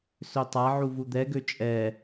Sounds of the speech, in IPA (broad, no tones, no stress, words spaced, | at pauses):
søtˤaʕu vud̪ɛɡø t͡ʃʼɛ